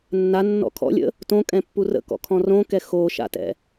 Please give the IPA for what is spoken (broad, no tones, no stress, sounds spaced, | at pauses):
nː a nː ɔ̰ kʰ ɔ̰ lʲ ə̰ | t õ kʼ ɛ̃ pː u r ə̰ k ɔ̰ kʰ ɔ̃ r õ k ɛ x o ʃ a̰ t ɛ̰